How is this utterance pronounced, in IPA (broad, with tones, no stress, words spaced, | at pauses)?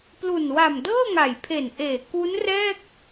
plu˨˩nwa˨˩m dɤː˥˩ŋa˨˩jpʰe˨˩nʔeː˨˩ ku˦˥nrɛː˥˩k̚